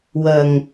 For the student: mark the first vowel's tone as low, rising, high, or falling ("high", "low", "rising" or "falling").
low